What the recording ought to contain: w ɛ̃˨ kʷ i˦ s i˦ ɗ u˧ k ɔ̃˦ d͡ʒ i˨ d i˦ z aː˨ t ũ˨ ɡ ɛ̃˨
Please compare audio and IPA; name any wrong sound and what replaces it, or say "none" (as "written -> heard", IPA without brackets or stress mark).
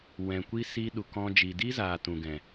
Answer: none